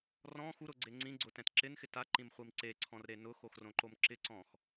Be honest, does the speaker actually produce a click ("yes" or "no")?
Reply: yes